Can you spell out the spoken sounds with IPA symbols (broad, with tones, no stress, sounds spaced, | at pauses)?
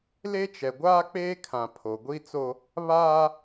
l e˦ t͡ʃ ɛ˨ ɡʷ aː˦ k͡p eː˦ kʰ ã˨ pʰ o˨ ɡʷ i˦ t͡s o˦ | β aː˦